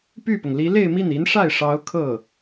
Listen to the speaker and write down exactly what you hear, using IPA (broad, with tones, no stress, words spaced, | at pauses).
py˥˩pʊ˩ŋli˧˥ le˥˧ɪ̯mi˥˩ni˧˥nʂa˥˩ɪ̯ ʂɑ˧˥ʊ̯ kʰɤ˥˩